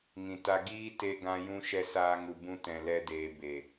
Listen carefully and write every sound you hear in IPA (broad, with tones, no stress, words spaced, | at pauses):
ŋĩ˨ta˧ ɡiː˦ te˧ɡã˧jũ˧ ʃɛ˧saː˧ŋu˨bũ˧ tɛ̃˨lɛ˧deː˨ be˨